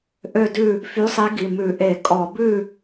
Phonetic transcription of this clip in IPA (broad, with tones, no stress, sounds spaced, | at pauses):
ʔ ø˥˨ d ʉ˥˨ | f y˨˦ sˤ i˨˦ ɡ i˩˧˩ m ʉ˧˩˧ ʔ e˧˩˧ kʼ ɔ˧˩˧ b ʉ˥˨